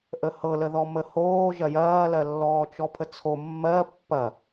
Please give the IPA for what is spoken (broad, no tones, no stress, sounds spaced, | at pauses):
ʔ ə h ɤ l ə ð ɔ m ə h oː ʒ ɐ j ɐː l ɜ lː ɔː t͡ʃ ɔ pʰ ə t͡sʰ o mː ɜ pː ɐ